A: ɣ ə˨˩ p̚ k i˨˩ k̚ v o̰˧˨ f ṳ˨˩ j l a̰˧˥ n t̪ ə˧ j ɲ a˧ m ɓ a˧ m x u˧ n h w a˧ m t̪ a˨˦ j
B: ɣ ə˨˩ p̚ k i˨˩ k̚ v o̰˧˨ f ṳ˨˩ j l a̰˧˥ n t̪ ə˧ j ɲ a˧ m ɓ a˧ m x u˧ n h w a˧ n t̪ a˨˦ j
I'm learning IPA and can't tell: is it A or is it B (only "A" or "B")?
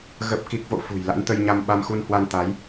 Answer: B